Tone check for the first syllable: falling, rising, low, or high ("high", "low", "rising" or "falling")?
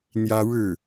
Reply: high